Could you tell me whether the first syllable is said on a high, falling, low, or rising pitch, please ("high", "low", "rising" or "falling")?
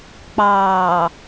low